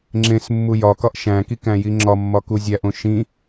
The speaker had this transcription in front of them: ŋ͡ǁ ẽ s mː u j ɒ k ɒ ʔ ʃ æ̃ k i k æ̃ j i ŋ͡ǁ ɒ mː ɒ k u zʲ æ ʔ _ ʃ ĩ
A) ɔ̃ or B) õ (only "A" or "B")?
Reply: B